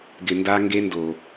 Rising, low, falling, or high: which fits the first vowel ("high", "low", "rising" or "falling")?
low